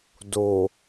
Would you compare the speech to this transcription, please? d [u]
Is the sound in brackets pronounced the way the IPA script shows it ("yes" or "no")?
no